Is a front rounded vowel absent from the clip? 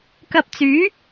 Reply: no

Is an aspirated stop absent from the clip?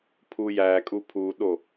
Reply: no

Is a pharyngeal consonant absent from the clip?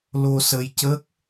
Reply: yes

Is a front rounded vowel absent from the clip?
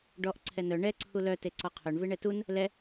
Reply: no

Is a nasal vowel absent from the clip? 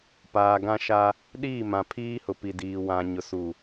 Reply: no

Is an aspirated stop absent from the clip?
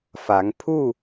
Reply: no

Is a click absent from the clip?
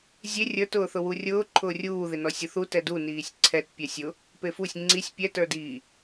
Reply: no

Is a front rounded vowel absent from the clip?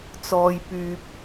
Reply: no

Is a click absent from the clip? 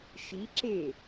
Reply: no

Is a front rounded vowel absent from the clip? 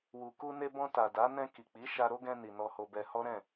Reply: yes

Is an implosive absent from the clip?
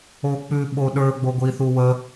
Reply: no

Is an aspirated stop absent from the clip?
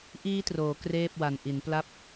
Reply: yes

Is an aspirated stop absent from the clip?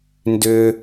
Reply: yes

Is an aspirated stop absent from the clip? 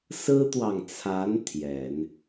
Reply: no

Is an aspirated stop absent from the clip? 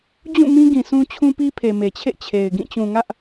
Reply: no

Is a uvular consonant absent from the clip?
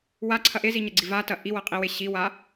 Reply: no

